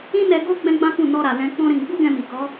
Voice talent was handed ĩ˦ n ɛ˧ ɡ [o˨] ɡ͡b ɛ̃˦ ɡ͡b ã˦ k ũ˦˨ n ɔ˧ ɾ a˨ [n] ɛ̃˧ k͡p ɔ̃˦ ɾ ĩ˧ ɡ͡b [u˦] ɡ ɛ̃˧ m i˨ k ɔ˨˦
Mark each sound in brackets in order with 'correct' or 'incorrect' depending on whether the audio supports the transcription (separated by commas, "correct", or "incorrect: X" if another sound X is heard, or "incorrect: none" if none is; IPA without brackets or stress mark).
incorrect: o˦, incorrect: l, correct